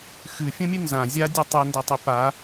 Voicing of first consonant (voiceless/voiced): voiceless